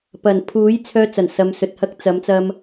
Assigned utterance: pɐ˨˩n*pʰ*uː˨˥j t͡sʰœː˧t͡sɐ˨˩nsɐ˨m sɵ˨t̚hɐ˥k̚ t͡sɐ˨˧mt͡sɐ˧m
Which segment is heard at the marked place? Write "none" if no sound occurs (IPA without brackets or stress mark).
pʰ